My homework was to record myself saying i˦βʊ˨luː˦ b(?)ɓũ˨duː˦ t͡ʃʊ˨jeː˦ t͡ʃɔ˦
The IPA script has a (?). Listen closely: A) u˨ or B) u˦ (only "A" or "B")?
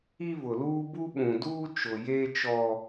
B